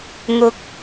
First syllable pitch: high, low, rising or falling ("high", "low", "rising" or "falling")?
low